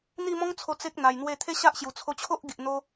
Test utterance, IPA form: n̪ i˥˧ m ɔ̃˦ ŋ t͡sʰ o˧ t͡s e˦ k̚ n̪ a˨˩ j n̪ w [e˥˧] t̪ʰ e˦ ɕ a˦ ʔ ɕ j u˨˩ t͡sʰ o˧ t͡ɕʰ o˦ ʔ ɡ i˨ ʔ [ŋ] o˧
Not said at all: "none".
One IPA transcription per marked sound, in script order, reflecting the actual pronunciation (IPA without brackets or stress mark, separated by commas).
e˥˧, n̪